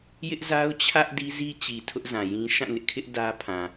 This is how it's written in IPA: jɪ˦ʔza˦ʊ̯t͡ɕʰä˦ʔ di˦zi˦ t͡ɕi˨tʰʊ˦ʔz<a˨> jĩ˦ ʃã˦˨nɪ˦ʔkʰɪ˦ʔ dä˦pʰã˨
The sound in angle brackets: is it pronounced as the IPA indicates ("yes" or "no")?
no